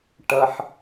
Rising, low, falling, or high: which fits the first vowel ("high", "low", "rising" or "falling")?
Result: low